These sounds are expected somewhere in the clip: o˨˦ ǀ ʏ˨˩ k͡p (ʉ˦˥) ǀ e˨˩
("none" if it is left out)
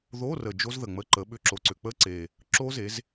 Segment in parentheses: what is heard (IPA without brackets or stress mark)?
ə˦˥